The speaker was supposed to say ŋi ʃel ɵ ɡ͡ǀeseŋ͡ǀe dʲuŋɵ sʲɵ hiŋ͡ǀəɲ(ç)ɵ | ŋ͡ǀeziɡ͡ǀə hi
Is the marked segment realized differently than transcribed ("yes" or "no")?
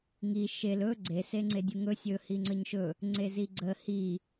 yes